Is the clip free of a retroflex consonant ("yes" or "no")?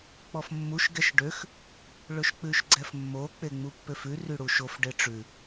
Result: no